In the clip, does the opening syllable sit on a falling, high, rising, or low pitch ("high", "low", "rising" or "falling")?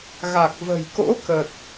low